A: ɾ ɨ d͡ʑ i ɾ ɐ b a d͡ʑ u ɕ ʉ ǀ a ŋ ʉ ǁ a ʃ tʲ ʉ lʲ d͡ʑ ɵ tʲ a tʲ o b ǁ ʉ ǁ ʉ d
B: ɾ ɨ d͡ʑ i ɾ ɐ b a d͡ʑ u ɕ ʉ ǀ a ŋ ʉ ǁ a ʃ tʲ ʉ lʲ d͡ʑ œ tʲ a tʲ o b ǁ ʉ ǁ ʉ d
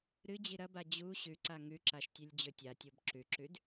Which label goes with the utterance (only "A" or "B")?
A